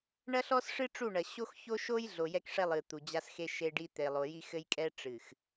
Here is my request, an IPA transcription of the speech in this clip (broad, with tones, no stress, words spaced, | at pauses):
ɳɐ˦ɬɔ˦sʂɨ˦ ʈ͡ʂu˦˨ɳɐ˨ ɕo˦x ço˦ʃo˦j ɮo˨jɛ˦kʂɛ˦ lˠɨ˨ t̪u˨d͡ʑa˦sxe˦ ʃe˦ɖi˦ t̪e˨lˠo˨ji˦ xɘ˦jkʼɛ˦ ʈ͡ʂɨ˨x